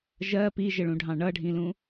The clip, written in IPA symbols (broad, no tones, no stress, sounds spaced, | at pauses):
ʒ ɜ p i ʒ ə ɭ ũ ɖʱ ɑ̃ ɳ ʌ ɖʱ ĩ l ũ